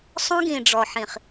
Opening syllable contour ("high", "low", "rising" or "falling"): high